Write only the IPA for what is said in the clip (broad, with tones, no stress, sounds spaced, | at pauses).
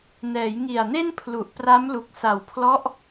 n ɛː˩˦ j ŋ i˨˩ a̯ n e˥˩ n pʰ l u˨˩ ʔ p r a˦˥ m l u˨˩ k̚ s a˨˩ w pʰ l ɔ˦˥ ʔ